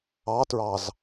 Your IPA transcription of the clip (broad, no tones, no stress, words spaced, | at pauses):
ɑtɹɑz